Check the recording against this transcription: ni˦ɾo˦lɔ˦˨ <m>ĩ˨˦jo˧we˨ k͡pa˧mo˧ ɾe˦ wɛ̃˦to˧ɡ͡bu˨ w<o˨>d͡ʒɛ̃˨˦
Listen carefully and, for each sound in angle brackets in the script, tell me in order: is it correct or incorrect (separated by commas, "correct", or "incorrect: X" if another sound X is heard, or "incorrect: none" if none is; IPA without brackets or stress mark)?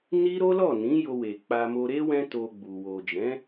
incorrect: n, correct